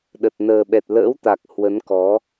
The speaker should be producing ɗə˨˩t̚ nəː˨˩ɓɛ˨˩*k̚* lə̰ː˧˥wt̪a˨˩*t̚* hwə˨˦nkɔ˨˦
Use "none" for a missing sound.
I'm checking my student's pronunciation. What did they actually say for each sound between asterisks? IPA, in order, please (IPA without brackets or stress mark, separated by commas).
t̚, k̚